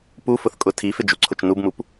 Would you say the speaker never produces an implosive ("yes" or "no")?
yes